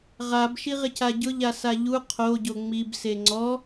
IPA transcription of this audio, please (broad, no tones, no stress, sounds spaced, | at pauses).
ʁ a b ʃ i ʁ ɪ c a ɟ ʊ ʎ a s a ʎ u qʰ o ɟ o ŋ͡m i b s e ŋ͡ǀ ɔ